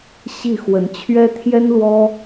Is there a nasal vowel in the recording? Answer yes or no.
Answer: no